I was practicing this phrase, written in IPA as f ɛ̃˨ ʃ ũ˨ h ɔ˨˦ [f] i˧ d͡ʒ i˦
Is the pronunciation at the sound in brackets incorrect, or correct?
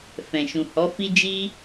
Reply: correct